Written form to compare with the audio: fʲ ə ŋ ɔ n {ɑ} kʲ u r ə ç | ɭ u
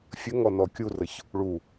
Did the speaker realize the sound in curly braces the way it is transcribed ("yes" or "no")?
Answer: no